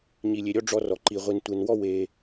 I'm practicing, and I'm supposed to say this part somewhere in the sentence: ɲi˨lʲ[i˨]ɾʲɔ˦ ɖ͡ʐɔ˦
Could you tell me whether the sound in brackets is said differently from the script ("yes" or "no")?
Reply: yes